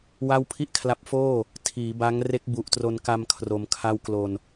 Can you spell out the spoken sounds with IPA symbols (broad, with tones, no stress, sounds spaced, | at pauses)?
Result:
w a˥˩ w pʰ i˥˩ ʔ kʰ l a˦˥ p̚ f oː˥˩ | tʰ iː˩˦ b a˦˥ ŋ r e˦˥ k̚ b u˨˩ ʔ t r o˧ n k a˧ m kʰ r o˧ m kʰ a˥˩ w k l o˧ n